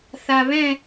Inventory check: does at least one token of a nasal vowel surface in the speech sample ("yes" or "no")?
yes